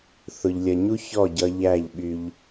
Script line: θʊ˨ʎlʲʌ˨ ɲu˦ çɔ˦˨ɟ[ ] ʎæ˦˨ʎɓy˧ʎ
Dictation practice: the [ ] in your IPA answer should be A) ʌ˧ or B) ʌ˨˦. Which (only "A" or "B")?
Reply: A